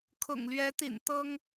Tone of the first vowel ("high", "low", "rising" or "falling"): low